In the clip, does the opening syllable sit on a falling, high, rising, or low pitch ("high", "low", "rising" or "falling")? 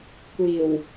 low